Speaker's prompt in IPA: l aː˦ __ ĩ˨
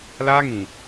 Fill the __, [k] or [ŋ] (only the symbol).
ŋ